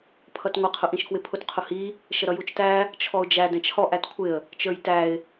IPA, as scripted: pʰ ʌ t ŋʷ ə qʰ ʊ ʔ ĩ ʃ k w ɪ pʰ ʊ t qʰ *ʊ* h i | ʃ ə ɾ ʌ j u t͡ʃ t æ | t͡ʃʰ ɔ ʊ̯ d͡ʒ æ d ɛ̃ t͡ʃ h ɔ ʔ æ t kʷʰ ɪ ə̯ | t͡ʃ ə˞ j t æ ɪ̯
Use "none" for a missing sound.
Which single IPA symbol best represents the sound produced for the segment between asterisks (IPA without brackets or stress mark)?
ʊ